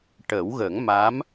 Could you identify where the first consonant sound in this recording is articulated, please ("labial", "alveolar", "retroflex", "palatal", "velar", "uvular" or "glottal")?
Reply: retroflex